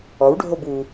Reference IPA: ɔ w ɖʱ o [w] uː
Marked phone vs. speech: incorrect: b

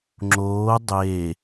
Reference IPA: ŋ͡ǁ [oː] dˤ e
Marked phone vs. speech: correct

